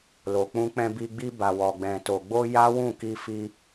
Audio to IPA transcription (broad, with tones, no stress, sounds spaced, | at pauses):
l o˨ k͡p ũ˧ k͡p ɛ̃˧ b i˧ ɡ͡b i˧ b a˨ w ɔ˨ ɡ͡b ɛ̃˨ t o˨ ɡ͡b o˧ j a˦ w ũ˦˨ k i˧ f i˧